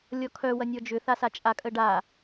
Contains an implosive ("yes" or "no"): no